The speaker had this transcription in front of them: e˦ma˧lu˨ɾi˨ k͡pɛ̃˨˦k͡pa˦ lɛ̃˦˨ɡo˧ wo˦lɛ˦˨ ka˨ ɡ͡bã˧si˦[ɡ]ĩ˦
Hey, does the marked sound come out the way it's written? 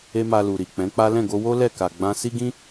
yes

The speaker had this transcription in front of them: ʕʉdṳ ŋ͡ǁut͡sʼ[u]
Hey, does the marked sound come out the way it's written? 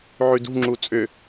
no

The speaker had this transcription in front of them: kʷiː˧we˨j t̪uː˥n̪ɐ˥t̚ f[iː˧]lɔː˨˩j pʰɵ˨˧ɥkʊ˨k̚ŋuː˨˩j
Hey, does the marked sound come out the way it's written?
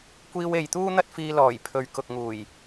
yes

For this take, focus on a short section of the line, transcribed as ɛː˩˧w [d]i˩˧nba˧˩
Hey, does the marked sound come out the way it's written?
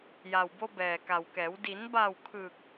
yes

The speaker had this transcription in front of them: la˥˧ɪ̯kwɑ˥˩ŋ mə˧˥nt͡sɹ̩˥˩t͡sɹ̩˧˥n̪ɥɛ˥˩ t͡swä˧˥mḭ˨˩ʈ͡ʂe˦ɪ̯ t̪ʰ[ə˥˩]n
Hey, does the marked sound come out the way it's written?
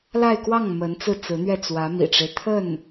yes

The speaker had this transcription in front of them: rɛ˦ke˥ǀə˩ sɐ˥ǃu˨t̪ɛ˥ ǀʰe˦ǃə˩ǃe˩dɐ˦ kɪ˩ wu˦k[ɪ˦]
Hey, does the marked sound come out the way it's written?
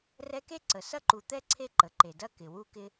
yes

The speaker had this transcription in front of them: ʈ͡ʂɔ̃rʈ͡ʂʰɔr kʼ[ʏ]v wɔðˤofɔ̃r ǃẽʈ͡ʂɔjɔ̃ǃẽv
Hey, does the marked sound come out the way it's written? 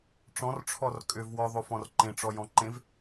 yes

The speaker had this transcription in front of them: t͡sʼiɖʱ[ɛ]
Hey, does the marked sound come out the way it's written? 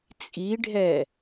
yes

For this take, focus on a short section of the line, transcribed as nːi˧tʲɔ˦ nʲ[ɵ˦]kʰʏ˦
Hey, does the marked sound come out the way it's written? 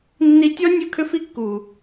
yes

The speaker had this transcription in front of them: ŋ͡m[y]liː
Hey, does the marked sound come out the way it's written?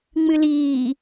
no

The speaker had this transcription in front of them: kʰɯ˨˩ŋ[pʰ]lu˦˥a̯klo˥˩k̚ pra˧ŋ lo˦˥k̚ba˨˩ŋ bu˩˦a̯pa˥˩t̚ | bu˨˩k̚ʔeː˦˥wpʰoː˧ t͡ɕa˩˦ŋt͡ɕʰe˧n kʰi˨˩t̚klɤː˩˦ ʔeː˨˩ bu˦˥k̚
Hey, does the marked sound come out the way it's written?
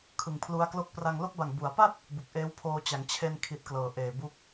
yes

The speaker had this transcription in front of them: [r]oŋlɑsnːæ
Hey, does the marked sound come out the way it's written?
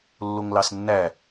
no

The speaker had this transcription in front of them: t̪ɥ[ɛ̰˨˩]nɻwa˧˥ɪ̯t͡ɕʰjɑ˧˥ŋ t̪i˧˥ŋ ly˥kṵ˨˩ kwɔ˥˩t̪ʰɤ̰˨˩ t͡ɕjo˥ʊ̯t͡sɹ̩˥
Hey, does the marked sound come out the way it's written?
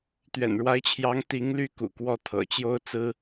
yes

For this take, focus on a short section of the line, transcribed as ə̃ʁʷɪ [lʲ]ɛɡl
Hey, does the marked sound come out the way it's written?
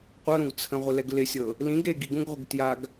no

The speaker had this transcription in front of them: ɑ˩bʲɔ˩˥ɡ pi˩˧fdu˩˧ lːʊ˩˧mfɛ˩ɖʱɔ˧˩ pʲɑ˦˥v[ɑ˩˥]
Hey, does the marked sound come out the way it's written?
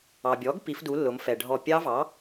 yes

